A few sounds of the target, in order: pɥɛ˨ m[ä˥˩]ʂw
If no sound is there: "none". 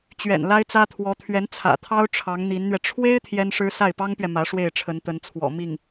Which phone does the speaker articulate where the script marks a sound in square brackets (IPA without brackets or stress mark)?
ä˧˥